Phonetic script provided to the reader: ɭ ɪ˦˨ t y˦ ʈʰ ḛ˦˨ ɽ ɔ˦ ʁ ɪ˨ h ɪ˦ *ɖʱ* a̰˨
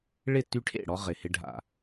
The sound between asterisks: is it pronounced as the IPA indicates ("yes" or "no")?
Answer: yes